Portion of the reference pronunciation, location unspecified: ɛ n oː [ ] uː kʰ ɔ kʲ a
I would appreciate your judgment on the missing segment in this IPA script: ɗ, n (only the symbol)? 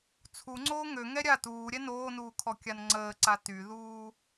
n